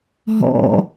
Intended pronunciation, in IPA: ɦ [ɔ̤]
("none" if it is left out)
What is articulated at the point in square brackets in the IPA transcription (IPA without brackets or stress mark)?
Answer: ɔ̰